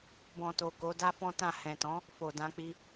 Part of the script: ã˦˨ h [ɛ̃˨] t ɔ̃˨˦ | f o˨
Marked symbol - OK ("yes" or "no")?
yes